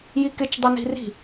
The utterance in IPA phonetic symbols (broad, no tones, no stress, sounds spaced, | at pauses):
j i k ɪ t͡ʃ dˤ ɪ n i̤ r i̤